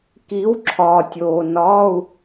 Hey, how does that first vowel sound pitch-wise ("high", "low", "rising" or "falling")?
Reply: rising